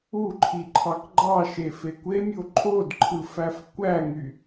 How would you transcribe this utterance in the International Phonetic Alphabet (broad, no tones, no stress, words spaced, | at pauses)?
uǃʰiǃʰɑk ɡ͡ǃɑʃefe kʷemʲo ǃʼodǃʰɯfæf kʷæŋy